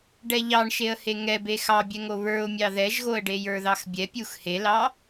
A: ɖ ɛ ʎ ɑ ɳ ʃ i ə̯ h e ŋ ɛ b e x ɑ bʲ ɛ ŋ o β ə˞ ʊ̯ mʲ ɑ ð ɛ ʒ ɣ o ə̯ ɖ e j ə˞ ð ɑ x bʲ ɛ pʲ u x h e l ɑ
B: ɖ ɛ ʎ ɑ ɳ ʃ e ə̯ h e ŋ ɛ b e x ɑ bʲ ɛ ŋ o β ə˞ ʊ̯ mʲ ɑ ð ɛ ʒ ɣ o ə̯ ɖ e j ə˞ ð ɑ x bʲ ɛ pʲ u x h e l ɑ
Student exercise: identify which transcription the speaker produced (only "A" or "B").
B